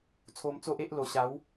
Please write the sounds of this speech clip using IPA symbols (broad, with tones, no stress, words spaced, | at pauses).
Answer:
t͡sʰo˧mt͡so˦ʔe˦ʔ lo˨˩ɕa˨˦w